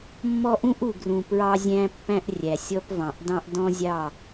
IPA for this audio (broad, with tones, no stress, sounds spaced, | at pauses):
mː ɔ˦ ʔ ũ˦ ʔ u˨ ɡ r ũ˨ p ɹ ɑ˦ zʲ æ̃˦ pː æ̃˦ ʔ rʲ æ˨ sʲ ɔ˦ p v ɑ̃˨ ʔ d ɑ̃˦ ʔ d ɔ̃˦ zʲ ɑ˦˨